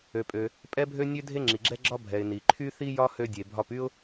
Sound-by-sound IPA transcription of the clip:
ø˩pʼø˩ | pʼɛ˥bʱø˥nʲø˥ dʱe˥ŋ͡ǁi˩ɡ͡ǁɛ˥ ɡ͡ǁɒ˥bʱɛ˩ɪ̯ ni˩ǃʰy˥θi˥jɒ˥ hø˥dʲe˩bʱɒ˥p y˥ʊ̯

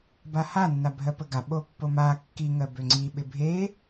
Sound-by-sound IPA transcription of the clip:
bahanːa bʱɜpəɡaɓo pːoma kːiŋɜ bøŋ͡ǀiɓɪ bʱe

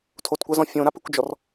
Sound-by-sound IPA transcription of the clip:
tʰotkʷazɔ̃ fʲõɾapɨkʷd͡ʒɔr

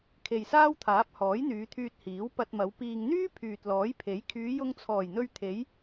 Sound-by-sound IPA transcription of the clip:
kʰe˨jsaː˥wt̪ʰaː˨˥p̚ hɔː˨˥jn̪yː˨˧t̪ʰyː˧t̚ hiː˨˥wpɐ˧t̚mɐ˨˧w piː˨ŋn̪yː˥ pʰyː˨t̚lɔː˨˥jpʰe˨˥j kʰyː˨˧jʊ˧ŋt͡sʰɔː˨˩jn̪ɵ˧ɥ t̪ʰe˨˧j

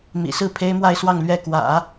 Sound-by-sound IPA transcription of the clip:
mḭ˨˩sɹ̩˥˩ pʰe˥ɪ̯mwa˥˧ɪ̯swɑ˥˧ŋ lɥɛ˥˩ kwä̰˨˩˦

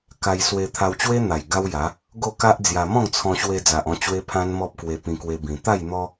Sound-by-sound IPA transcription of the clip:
ka˧j swe˧t̪ʰa˧w t͡ɕwe˦n̪a˨˩j ɡa˦wja˨˦ | ɡo˥˧ka˦ʔd͡zja˧ mɔ̃˥˧ŋt͡sʰɔ̃˧ɕwe˧ d͡za˨ʔɔ̃˧ t͡ɕwe˦pʰã˦nmɔ˦p̚ kwe˧pĩ˧kwe˧bĩ˨˩ t̪a˥˧j n̪ɔ˦

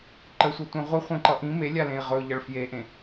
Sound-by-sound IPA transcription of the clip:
ǃəsʷʌtʷẽ ʁʷə χʷẽǃʌʔĩ melʲalẽi̯ ʁɵʎʌɭ fjeʔẽ

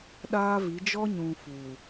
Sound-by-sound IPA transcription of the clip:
ɗaː˦vi˨˦ d͡ʒɔ˦ɲũ˨ fu˨

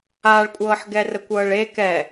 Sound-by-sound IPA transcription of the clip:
aɭkʷʼɤːħɡɛ rəkʷɤːɭe kɛ

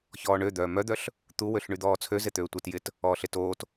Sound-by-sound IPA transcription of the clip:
çɔːɳød̪œː mœd̪œɬ | t̪u wøɬɳyd̪ɔːt͡sʰø zet̪øːtʷet jɪt | ɔːɬetoːt

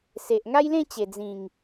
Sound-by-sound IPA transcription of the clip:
se˨ʔŋa˦jlẽ˥˧t͡ɕe˨˩ d͡zĩ˨˩ŋ

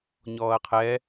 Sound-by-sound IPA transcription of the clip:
ɲɔːɐ̯qʰɛ

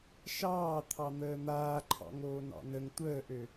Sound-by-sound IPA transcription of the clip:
ʃɑː t̪ʰɑn̪əːn̪aːǃʰɑ̰ ŋoːnɑ̰nəŋ tʷəːʔø

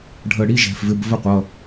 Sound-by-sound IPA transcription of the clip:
ɖʱə˧˩ɽi˧˥˧ ʒɛ̤˩˧˩fvɪ˧˥˧b və˥˨qʷʌ˩˧˩

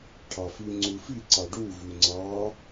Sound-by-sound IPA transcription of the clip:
ʈʰɑfi ŋ͡ǀufi ǀɑɖu vʉŋ͡ǀɑ

